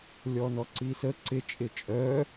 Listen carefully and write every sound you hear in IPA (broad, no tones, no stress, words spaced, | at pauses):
lʲɔnɔǀisə ǀɪ t͡ʃʼɪt͡ʃʼœ